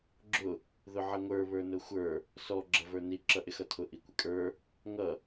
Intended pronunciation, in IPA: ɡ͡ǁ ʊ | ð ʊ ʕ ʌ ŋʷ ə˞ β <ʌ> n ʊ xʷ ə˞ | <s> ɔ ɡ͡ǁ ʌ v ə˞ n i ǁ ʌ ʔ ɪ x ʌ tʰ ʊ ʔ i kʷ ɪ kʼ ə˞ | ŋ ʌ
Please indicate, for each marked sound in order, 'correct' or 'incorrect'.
incorrect: ə˞, correct

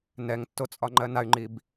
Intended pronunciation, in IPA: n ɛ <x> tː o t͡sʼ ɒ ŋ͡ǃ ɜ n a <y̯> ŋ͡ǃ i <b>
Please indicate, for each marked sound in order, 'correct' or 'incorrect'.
incorrect: ŋ, correct, correct

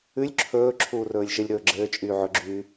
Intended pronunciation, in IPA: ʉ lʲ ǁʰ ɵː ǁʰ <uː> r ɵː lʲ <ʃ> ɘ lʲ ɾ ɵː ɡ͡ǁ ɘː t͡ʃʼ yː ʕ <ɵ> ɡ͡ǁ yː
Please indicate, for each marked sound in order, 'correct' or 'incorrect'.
correct, correct, correct

